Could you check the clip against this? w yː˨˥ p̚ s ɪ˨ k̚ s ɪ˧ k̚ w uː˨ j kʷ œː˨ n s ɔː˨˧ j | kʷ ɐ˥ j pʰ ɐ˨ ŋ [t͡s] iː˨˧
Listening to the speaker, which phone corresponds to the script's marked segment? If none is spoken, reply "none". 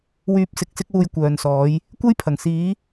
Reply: s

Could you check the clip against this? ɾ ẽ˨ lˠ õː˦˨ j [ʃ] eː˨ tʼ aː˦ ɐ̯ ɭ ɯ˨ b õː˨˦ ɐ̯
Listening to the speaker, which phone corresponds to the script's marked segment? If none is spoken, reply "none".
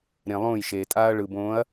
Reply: ʃ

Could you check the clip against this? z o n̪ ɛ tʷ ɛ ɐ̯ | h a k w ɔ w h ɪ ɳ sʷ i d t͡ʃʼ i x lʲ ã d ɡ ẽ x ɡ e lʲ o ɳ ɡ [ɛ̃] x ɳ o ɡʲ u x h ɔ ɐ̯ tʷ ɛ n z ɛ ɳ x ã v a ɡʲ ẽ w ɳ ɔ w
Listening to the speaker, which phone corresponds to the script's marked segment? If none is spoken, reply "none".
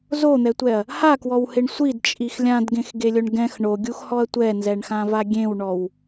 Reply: ɛ̃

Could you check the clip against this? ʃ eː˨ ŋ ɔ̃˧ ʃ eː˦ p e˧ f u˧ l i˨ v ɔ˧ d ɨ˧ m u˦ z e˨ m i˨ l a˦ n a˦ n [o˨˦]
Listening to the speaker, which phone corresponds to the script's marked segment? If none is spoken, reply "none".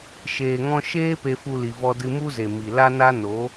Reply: o˨˦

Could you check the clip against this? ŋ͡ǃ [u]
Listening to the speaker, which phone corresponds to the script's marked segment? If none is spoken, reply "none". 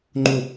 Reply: u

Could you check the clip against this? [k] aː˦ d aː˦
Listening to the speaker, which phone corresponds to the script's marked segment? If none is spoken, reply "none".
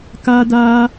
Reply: k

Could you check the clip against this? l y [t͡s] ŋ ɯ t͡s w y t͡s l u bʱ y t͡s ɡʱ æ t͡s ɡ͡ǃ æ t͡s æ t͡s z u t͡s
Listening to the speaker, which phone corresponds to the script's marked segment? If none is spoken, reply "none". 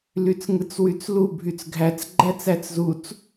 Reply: t͡s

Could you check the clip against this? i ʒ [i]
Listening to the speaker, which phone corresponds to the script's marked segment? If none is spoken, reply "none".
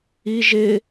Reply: ɪ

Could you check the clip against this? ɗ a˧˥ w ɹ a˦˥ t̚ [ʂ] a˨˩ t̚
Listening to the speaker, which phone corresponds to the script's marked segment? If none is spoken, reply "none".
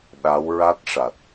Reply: ʂ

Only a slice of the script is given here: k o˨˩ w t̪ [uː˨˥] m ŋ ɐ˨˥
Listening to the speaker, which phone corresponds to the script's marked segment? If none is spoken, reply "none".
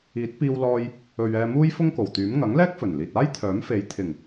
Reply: yː˨˥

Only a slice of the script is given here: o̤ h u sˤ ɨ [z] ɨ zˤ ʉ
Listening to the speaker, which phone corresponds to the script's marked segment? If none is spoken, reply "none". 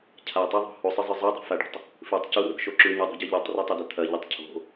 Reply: zˤ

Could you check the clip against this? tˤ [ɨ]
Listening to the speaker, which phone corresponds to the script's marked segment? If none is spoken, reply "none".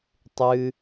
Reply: ɨ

